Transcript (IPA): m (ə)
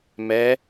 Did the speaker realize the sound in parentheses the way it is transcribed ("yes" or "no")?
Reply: no